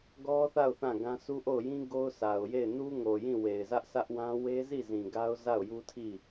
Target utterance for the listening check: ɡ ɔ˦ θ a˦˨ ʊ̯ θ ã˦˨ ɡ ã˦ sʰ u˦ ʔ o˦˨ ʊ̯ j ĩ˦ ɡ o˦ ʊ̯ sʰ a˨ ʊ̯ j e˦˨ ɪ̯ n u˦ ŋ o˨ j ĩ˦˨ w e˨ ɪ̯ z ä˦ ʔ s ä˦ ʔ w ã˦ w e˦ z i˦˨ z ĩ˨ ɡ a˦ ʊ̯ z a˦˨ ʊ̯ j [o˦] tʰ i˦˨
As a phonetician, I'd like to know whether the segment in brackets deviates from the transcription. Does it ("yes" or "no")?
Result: yes